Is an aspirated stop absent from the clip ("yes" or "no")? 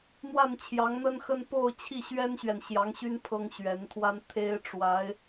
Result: no